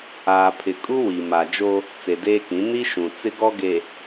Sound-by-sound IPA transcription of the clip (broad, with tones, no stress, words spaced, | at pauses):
aː˨pʰɪ˨kʼu˦ wi˨ ma˨d͡ʒo˦ | t͡se˨deː˦kĩ˨˦ ni˦ ʃũ˨ t͡sɪ˦ɡɔ˦ɡe˨